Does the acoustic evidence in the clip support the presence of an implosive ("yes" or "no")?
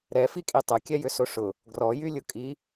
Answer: no